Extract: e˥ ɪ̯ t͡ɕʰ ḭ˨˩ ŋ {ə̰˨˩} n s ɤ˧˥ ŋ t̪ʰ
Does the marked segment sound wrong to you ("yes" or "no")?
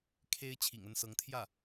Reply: yes